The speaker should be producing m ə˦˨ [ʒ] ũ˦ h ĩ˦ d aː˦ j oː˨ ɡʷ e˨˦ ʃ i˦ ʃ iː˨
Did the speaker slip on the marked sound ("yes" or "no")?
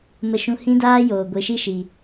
yes